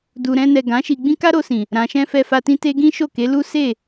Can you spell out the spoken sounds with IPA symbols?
d u˨ ɾ ɛ̃˧ n ɛ˨ ɡ ã˨˦ ʃ i˧ ɡ͡b ĩ˦ k a˦ ɾ o˧ s ĩ˨ | ɾ ã˨ ʃ ɛ̃˧ f ɛ˧ f a˧ t ĩ˦ t e˦ ɡ ĩ˦ ʃ o˦˨ k e˨˦ l u˦ s e˦˨

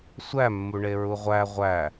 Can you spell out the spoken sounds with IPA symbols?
sʷ æ mː u ɳ e ɹ u ʁʷ æ ʁʷ æ

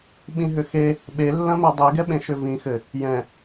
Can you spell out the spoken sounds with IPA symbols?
ɓ ĩ ɦ ʏ x e | ɓ e lː ɐ̃ m ɛ dˤ i ɡ ɛ ɓ ẽ ʃ ʏ v ĩ x ɘ | j ɛ̃

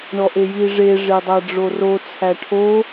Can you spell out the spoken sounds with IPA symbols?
ɳ ɔ ʔ e j i ʐ e ʐ e dˤ æ ɖ͡ʐ o r o t͡sʰ æ ʈʰ o

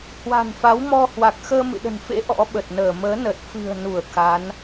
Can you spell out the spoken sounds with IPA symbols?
h w a̤˨˩ n f a˨˦ w m ɔ˧ h w a˨˩ k̚ x əː˧ m ɨ̰˧˨ ɗ ə̤˨˩ n f ḛ˧˥ ʔ ɔ̰˧˥ ɓ ə˨˩ t̚ n əː˧˩ m əː˨˦ n ə˨˩ t̚ f ɨ̤˨˩ ə̯ n u˧˩ ə̯ k a˨˦ n

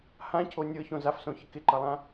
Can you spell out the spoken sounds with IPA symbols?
h ã cʰ o nʲ ɤ ç õ z a f s õ ç ɪ k ɪ ǃ ʌ lˠ ã

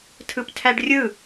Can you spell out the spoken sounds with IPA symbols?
tʰ ɯ p tʰ æ ɖ rʲ ɯ

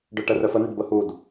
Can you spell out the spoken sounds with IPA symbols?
ɖ œ ʈ ə r œ f ə n ə ɖ b ə h u d

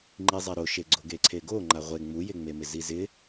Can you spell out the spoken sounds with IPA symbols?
ŋ͡ǃ i zˤ ɛ ɾ o ʃ e ɡ͡ǀ o ɡ e ǀʰ e ɡ o ŋ͡ǃ a ʁʷ e ŋ͡m u j e ŋ͡m e m ɪ z i z ɪ

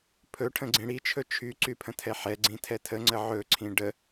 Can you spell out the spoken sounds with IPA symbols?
pʰ ɵ ʈʰ ə̃ ɡ͡ǀ ĩ ɽ i t͡ʃʰ ɵ t͡ʃʰ y ǀ y pʰ ə̃ tʰ ɛ ħ ɛ ɡ͡ǀ ĩ tʰ ɛ tʰ ə ŋ͡ǀ ə ʕ ɵ ǀʰ ĩ ɖ ə

